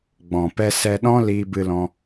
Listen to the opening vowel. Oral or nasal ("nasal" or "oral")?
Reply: nasal